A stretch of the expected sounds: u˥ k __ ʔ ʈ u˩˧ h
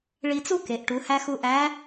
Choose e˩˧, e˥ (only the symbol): e˩˧